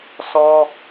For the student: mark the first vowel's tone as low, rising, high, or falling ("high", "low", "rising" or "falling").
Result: high